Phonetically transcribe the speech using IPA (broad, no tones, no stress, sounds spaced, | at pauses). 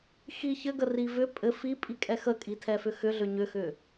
x i ç ɘ ɡ ə r i v ʏ pʼ ɘ f i pʼ i kʼ ɛ x ə kʼ i tʰ ɛ f ʏ x ʏ ɮ ʏ ɲ ʏ x ʏ